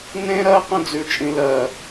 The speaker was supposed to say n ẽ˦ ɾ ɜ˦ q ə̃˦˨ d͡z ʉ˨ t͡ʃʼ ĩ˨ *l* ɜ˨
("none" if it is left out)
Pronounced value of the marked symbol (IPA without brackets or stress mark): l